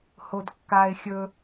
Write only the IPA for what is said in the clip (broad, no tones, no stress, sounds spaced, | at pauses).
h o d kː a ɪ̯ xʲ ɵ